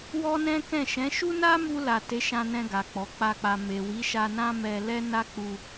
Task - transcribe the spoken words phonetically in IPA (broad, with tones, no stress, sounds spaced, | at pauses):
w ɔ˦ n ɛ̃˦ k ɛ̃˦˨ ʃ ɛ̃˨˦ ʃ u˦ n a˦ m u˧ l a˨ t e˨˦ ʃ ã˧ n ɛ̃˧ ɡ a˨ k͡p ɔ˨˦ k͡p a˦˨ k͡p a˧ m e˨ w i˨˦ ʃ a˧ n ã˦ m ɛ˧ l ɛ˦ n a˦ k͡p u˧